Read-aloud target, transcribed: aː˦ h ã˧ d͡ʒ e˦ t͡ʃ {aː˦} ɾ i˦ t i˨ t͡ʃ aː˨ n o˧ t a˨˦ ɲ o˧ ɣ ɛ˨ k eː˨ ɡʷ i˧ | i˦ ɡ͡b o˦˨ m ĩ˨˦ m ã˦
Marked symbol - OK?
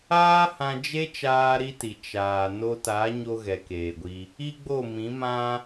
yes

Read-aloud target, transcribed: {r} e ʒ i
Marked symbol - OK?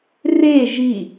yes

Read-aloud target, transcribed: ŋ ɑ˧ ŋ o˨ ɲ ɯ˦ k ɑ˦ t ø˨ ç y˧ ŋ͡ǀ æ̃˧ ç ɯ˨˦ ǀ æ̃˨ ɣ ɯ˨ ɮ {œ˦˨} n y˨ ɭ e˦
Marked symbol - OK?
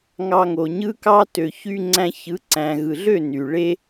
no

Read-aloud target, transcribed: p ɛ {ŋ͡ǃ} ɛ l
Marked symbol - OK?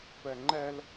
yes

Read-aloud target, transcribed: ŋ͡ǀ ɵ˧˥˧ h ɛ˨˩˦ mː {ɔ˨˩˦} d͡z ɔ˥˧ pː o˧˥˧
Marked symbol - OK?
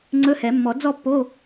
yes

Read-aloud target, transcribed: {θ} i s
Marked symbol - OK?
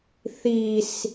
yes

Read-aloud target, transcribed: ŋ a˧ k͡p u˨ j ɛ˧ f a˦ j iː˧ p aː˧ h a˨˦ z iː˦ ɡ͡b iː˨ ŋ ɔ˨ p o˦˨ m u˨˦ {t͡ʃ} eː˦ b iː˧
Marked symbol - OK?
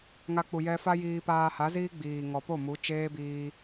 yes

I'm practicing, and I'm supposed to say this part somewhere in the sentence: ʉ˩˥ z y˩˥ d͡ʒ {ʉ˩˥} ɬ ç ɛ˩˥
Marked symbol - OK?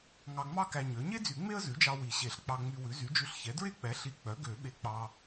no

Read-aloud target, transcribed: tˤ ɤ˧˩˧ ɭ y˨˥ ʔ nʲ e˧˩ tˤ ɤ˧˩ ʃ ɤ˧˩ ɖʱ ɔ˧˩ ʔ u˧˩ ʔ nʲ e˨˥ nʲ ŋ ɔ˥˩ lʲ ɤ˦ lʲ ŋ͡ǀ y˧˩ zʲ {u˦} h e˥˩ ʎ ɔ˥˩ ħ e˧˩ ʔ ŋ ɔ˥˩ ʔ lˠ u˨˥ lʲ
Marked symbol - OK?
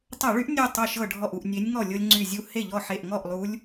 yes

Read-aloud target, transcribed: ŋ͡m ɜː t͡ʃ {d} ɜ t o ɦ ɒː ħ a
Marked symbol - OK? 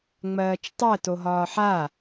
no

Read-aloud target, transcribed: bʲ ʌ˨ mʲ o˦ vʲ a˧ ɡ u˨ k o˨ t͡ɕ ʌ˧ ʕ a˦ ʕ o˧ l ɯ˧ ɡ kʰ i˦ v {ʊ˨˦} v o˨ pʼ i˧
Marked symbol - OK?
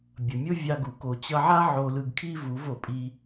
no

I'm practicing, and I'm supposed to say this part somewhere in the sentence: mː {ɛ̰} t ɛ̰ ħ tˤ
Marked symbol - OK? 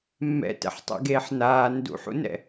yes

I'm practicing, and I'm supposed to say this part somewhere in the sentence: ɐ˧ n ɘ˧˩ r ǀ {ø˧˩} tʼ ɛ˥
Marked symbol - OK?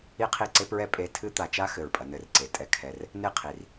no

